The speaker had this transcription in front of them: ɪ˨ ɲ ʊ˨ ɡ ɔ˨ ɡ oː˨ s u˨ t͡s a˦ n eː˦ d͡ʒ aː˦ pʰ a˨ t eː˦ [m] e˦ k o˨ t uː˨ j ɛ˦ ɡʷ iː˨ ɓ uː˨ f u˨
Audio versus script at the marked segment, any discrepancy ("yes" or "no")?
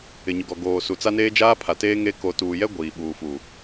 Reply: yes